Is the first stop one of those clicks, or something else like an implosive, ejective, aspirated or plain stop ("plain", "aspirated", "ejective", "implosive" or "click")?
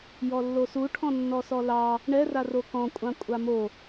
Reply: aspirated